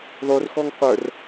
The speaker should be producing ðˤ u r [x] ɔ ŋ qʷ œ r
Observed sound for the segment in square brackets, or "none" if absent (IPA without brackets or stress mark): x